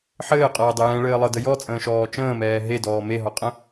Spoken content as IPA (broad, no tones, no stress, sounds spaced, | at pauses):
ħ ɘː qʼ ɤː dˤ ɘ j ɛ̃ ɭ ɘː lˠ ɤ d ə j ɔ t͡sʼ ə̃ː ʃ ɔː t͡ʃ ə̃ː m ɛː ɦ e d ɔː m e ɦ ɔ qʼ ə̃